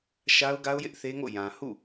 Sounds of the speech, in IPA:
ʃ a˦ ʊ̯ ɡ a˦ ʊ̯ j ɪ˦ ʔ θ e˦ ŋ o̰˦˨ j ã˨ h ṵ˦˨

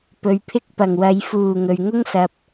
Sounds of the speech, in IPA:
p ɵ˨ ɥ pʰ ɪ˥ k̚ p ɐ˨˩ ŋ w ɐ˨˧ j f uː˨˩ ŋ ɵ˨ ɥ ŋ ʊ˥ ŋ s ɐ˨ p̚

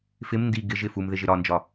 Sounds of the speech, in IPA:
f ɪ m n d i ɡ ɪ ʒ ɪ f u m ð ɪ ʒ ɪ ɾ ɒ n d͡ʒ ɒ

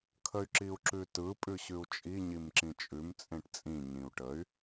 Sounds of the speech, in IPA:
kʰ ə y̯ ǁ i u̯ ǁ ʉ t ɯ pʼ ʉ ɕ ʉ u̯ t͡ʃʼ i ɲ i m ǁ ĩ t͡ʃʼ ʉ m t͡sʼ ẽ ʈ t͡sʼ ĩ ɲ ĩ u̯ ʈ ə y̯

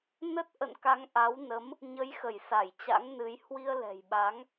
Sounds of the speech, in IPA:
n ə˦˥ t̚ ʔ ə̰˧˨ n k a˨˦ ŋ ʔ a˨˦ w n ə˨˦ m | ɲ ə˨˦ j x ə˧˩ j s a˧˩ j t͡ɕ a̰˧˥ ŋ n ɨ˨˦ j h w i˧ ə̯ l ɛ̤˨˩ j ɓ a˨˦ ŋ

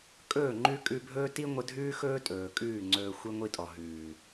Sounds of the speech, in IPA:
kʼ ɵː˦˨ ŋ͡ǃ ʉ˦ kʼ ʉ˧ bʱ ɵː˦ t i˦ ŋʷ ə˧ dʱ ʉː˦ x ɵː˦ tʼ ɵː˨ kʼ ʉː˦˨ ŋ͡ǀ ɵː˧ xʷ i˦ ŋʷ i˧ tʼ ɔ˨ ɦ ʉː˨

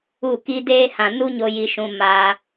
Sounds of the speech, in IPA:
u˦˨ k i˦ d eː˦ h ã˨ n u˦ ɲ o˧ j i˧ ʃ ũ˧ m a˧

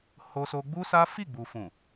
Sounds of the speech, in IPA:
h o˧ s o˧ ɡ͡b u˦ s a˦ f i˦˨ ɡ͡b u˨ f ũ˨

